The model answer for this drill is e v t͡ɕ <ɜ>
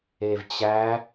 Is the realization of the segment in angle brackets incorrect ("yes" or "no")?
yes